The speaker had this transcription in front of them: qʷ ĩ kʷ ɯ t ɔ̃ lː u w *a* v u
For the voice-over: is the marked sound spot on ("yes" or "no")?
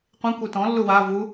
yes